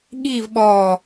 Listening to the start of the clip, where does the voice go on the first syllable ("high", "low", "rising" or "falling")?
falling